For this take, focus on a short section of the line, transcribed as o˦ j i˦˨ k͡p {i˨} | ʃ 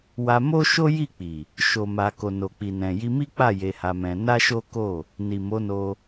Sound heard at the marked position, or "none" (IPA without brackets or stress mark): i˨